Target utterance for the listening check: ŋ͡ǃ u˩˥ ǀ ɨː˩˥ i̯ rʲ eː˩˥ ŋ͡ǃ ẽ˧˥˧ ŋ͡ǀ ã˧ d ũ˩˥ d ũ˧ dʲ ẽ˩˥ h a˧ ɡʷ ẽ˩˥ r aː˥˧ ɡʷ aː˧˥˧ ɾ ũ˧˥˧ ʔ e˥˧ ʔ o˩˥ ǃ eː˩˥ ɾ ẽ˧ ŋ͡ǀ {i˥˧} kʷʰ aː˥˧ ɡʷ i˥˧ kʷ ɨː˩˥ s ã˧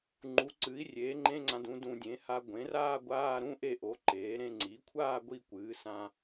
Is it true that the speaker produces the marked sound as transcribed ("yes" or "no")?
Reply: no